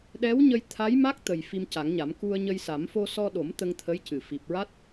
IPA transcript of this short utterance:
ɗɛ˧˥wɲə˧j t̪ʰa˧˥jma˦˥k̚t̪ə˨˩j fi˧mca˨˩˦ŋɲa˨˩˦m ku˧ə̯ɲə˧jsa˨˩˦m fo˧sɔ˧ɗo˨˩˦m t̪ə˧ŋt̪ʰə˧˥jcɨ˨˩ fi˨˩p̚ɹa˦˥t̚

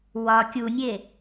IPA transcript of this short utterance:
wɒ kʲunʲe

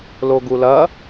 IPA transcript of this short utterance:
loɡulɐ

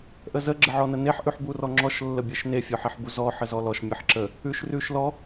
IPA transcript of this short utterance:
ʔəzə ɡ͡ǁəʕɔnəneħ ʔʉħburɔŋ͡ǁɔʃ lːəbʲeʃne fʲɔħeħbuzɔ ħəzɔlɔʃ mʲəħǁə | ʉʃrʉʃlɔ

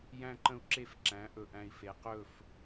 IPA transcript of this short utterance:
jæ̃˦ǃə̃˦u̯ǁe˦fǁæ̃˨˦ ʔɵ˨ʔæ̃˨i̯ fe˨qɵ˦˨f

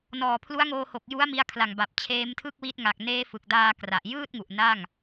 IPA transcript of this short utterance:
nɔː˨˩pʰlu˦˥a̯ŋoː˧ho˨˩k̚ ju˦˥a̯mi˧a̯kʰla˨˩ŋ ba˨˩p̚t͡ɕʰeː˦˥mtʰɯ˥˩k̚wi˦˥t̚ ŋa˨˩k̚neː˦˥fɯ˨˩k̚daː˧ kra˨˩ʔ jɯː˥˩t̚ŋu˨˩ʔ na˥˩ŋ

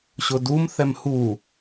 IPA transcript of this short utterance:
ɕʊdum θɛmhu

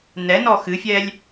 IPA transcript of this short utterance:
nɛnɔ xɨfʲɛlʲ

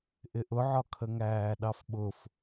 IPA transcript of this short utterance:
ʔɪʔʊʕɒ kʰəŋæːɗɑfɓʊf

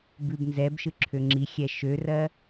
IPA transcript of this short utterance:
bʉbnzɛbʃɯ ǁʰøŋ͡ǁixʲɛ ʃørɜ

